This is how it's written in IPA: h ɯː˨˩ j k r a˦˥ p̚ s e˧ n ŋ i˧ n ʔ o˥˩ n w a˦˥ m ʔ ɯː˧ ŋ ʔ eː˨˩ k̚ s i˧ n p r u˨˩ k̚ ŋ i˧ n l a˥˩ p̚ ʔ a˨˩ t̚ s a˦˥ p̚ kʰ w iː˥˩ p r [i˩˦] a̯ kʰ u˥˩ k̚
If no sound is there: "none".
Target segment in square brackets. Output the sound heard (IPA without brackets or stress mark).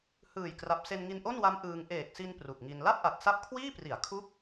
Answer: i˩˦